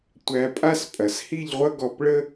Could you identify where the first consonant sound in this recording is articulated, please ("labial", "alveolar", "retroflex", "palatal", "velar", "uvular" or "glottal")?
alveolar